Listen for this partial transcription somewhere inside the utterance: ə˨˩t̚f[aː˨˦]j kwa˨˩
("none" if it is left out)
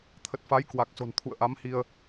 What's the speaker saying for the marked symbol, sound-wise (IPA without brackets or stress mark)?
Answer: a˨˦